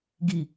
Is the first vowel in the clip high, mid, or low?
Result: high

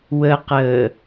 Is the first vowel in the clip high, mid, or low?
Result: mid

